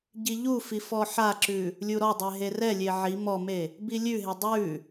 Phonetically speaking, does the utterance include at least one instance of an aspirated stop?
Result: no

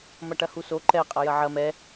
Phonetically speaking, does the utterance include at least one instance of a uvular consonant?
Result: yes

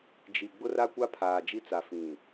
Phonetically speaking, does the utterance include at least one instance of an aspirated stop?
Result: yes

